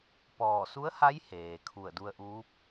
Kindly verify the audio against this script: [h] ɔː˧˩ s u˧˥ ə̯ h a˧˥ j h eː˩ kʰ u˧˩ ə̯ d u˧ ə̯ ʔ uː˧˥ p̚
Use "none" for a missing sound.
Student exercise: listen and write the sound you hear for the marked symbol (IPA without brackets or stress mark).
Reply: p